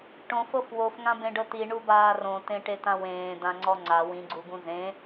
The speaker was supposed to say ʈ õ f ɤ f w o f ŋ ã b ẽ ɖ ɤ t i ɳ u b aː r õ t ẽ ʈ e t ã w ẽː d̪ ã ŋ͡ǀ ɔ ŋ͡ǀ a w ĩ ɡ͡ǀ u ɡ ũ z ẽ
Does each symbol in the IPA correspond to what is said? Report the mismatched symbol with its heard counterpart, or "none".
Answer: none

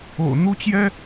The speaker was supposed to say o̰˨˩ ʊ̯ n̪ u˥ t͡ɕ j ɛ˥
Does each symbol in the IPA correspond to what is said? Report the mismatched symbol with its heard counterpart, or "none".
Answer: none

